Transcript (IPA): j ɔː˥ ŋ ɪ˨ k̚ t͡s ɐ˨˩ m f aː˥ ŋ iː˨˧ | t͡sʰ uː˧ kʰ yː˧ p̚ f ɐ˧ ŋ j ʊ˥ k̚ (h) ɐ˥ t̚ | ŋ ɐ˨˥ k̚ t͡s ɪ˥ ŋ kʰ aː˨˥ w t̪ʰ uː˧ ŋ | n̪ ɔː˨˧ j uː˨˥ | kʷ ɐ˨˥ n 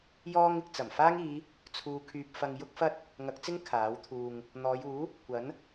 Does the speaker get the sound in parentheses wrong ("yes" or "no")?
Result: yes